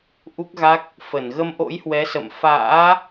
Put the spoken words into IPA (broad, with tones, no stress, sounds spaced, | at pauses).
ʔ u˦˥ k̚ ɣ a˦˥ k̚ | f ə˧˩ n ɣ ə˧ m ʔ o̰˧˥ j h w ɛ˨˦ s ə̰˧˨ m f a̰ː˧˥